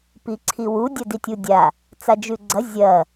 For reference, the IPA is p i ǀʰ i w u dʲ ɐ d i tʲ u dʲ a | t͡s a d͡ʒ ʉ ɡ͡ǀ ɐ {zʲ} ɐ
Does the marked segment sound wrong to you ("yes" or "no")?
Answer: no